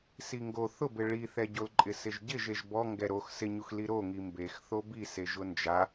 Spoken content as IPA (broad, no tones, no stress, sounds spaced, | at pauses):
s i ŋ ɡ o θ ʊ b ɪ ɭ i θ ɛ ɟ o l ǃʼ ɪ s ɪ ʒ ɟ ɪ ʒ e ʒ b ɔ ŋ ɡ ɛ ɾ o x s ɪ ɲ u x l i ɾ o ŋ i m b e x θ o b i s e ʒ ʊ n d͡ʒ a